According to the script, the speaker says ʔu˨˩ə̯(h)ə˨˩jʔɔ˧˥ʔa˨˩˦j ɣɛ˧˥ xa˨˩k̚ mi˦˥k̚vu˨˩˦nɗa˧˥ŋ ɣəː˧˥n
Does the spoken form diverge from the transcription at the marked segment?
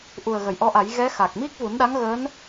yes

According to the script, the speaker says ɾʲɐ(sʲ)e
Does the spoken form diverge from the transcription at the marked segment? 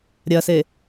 yes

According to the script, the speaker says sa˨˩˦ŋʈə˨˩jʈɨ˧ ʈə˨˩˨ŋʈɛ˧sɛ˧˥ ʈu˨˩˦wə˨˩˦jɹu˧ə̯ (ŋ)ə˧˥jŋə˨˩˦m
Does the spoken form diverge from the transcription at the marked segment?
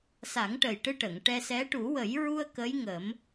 yes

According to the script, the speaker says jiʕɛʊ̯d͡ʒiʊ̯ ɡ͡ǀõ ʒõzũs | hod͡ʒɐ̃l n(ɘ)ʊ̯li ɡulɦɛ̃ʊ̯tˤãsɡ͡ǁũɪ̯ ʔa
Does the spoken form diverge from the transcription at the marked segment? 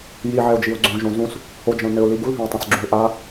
no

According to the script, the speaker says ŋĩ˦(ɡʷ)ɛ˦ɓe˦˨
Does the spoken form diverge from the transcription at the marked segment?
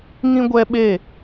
no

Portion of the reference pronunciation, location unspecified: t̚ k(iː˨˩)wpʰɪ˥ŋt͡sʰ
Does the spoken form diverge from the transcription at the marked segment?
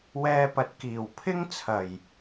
no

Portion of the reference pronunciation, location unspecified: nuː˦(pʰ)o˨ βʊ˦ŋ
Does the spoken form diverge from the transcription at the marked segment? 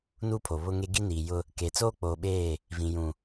no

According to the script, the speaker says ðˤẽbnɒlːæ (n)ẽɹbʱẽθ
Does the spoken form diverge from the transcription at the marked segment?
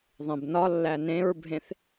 no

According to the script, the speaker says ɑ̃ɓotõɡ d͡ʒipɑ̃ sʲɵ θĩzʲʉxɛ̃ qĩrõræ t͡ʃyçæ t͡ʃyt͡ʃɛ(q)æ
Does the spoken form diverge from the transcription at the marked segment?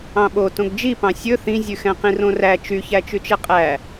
yes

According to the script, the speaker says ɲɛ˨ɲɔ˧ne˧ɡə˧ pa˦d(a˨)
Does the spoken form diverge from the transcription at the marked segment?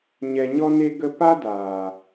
yes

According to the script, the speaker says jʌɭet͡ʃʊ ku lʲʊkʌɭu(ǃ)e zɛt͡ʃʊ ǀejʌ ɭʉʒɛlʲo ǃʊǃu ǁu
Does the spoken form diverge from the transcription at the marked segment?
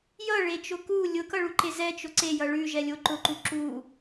no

